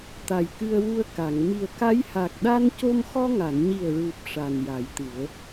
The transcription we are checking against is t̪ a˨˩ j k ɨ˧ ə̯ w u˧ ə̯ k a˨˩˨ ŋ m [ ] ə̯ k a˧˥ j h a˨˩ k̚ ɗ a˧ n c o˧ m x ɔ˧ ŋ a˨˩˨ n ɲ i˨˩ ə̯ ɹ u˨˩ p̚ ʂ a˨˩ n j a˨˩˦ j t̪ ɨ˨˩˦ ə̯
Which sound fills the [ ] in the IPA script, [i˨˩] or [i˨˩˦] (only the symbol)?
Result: i˨˩